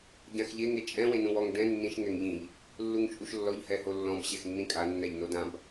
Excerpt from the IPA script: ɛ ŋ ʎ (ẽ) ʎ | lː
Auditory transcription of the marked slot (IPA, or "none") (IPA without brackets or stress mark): ĩ